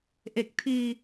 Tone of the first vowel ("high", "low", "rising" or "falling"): low